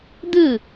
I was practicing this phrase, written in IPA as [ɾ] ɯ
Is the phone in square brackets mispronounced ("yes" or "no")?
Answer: yes